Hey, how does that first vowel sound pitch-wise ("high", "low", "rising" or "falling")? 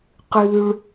low